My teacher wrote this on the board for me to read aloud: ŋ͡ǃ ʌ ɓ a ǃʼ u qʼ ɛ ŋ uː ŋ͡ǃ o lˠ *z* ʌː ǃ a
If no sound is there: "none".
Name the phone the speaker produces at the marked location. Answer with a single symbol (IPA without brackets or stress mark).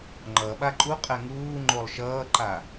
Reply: ʃ